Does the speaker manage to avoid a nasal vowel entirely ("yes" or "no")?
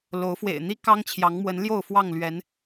yes